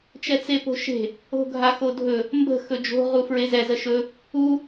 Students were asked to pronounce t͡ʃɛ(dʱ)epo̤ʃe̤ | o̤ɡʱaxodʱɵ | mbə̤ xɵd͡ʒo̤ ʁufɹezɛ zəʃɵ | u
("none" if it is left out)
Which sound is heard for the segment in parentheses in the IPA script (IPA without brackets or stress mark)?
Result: t͡s